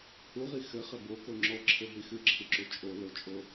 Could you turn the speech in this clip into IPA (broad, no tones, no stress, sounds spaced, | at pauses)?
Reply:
h u ʁ i x ɘ χ ɘ b o k o ŋ͡ǁ ɔ ǁʰ ɘ ɦ i x ɨ ǁʰ ɨ ǁ u t͡ʃʼ o l o t͡ʃʼ o